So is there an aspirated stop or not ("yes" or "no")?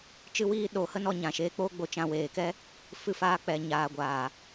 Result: no